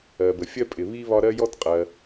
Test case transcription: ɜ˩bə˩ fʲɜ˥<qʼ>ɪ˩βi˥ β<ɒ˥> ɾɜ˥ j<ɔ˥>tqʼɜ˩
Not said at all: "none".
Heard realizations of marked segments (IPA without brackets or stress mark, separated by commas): pʼ, ɒ˥, ɔ˥